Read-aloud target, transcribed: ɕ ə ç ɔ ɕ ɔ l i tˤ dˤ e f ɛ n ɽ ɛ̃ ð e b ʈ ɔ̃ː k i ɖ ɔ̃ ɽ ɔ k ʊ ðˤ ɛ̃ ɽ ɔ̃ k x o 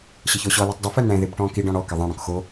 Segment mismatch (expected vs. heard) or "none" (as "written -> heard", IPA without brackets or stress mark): ʊ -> ə